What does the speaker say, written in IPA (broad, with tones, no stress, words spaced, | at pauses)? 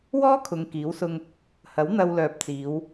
wɔː˥kʰʊ˨˧ŋ kiː˨˥wsʊ˧ŋ | hɐ˨˥w n̪ɐ˧wlœː˨p̚t͡siː˨˧w